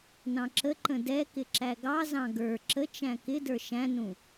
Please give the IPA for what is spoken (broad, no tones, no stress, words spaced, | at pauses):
nɑ̃ǁəǃə̃ dɛkɪ ǁæɡɑzɑ̃ ɡə˞ ǁət͡ʃæ̃ kɪdə˞ ʃæ̃nũ